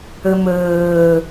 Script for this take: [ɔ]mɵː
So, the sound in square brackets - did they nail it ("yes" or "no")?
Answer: no